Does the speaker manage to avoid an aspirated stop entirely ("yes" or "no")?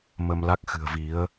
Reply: yes